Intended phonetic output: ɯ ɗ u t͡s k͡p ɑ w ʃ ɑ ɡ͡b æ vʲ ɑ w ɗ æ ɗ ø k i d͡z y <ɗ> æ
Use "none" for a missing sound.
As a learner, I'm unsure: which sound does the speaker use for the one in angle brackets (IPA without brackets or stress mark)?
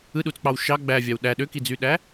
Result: ɗ